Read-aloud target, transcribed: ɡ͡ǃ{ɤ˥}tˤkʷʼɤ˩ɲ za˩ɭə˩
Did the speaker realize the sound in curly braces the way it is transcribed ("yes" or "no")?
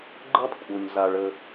yes